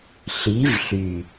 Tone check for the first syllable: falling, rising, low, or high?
rising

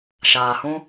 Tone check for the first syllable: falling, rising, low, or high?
low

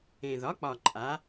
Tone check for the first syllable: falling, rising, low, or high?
low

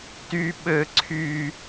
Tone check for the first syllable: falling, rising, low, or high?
high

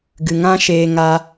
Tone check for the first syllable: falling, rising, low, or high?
low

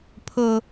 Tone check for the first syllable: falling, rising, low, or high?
low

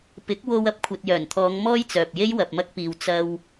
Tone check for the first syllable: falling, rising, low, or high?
rising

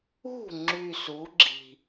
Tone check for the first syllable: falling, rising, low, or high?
falling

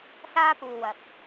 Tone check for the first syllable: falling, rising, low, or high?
high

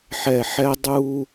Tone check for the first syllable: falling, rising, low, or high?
low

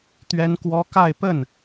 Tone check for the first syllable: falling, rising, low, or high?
high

